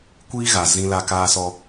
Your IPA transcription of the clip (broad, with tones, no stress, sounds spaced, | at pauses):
kʷ iː˦ ɣ a˨ z ĩ˦ l a˦ k aː˦ s ɔ˦